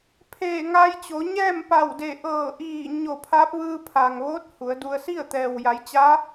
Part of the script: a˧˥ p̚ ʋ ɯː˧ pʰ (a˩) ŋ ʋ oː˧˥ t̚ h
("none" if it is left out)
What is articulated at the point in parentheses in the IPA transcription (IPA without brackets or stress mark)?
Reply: a˩